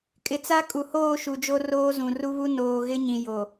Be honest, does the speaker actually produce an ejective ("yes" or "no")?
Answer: yes